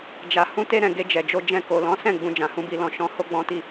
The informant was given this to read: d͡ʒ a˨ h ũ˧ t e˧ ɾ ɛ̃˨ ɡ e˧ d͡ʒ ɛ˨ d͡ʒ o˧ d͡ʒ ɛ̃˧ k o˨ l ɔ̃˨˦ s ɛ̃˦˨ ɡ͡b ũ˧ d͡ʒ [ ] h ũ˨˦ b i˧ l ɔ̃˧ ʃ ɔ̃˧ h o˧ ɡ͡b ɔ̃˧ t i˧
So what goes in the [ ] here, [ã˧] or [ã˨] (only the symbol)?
ã˨